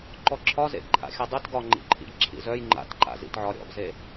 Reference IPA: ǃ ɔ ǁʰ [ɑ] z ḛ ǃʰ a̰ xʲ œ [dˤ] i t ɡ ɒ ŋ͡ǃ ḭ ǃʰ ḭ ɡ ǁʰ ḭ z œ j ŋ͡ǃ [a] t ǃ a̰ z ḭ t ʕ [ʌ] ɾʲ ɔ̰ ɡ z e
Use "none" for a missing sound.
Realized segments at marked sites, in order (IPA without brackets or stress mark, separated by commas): ɒ, dˤ, a̰, ɒ